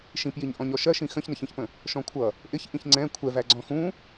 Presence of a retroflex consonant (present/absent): absent